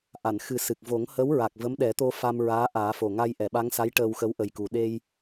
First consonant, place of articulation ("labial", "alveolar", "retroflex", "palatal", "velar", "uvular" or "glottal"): glottal